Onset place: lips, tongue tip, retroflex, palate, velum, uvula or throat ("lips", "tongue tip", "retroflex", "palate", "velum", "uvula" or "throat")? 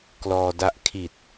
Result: velum